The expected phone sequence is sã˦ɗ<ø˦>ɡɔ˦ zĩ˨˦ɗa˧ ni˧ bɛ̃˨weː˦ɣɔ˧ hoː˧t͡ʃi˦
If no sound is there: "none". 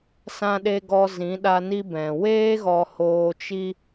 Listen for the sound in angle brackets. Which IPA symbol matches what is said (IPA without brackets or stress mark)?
e˦